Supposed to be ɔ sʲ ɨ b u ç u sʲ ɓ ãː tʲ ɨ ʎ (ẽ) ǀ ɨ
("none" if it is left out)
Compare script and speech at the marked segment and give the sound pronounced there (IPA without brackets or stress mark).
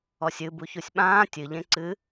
ẽ